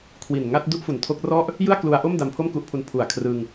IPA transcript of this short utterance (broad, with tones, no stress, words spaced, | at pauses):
kʰwi˨˩n ŋa˦˥t̚ du˥˩ʔfu˨˩ntʰo˦˥k̚ rɔ˥˩ʔ | jɯ˥˩a̯klu˧a̯ʔo˥˩m da˧mpʰo˥˩mku˦˥ʔpʰu˧n pʰu˨˩a̯kʰrɯ˧ŋ